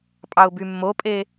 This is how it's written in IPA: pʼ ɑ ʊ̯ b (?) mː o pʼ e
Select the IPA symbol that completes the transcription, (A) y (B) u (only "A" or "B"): A